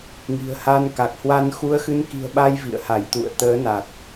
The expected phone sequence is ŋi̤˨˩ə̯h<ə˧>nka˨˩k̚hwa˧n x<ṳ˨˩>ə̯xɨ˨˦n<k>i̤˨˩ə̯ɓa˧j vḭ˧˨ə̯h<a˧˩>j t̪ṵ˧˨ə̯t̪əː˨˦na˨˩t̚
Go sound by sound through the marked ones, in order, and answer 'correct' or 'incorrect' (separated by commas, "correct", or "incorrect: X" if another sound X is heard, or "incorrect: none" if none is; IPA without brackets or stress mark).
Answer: incorrect: a˧, incorrect: u˨˦, correct, correct